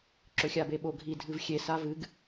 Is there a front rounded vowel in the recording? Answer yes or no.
no